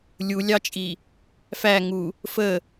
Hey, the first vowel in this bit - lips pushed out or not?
yes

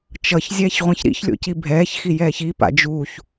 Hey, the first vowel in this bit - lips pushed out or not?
no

